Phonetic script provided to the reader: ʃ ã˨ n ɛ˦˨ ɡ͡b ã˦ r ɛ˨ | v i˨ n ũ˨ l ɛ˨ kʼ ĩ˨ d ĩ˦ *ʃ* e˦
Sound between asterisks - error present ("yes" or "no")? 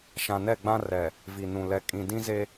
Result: yes